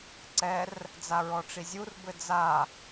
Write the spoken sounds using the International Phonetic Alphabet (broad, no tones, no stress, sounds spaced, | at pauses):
ǀ ɛ r | d͡z a ɹ ɔ ʈ͡ʂ i zʲ u r b ɘ d͡z a